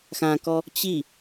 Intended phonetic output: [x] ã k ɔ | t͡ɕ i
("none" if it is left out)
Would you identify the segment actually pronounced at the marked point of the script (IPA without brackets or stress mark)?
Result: x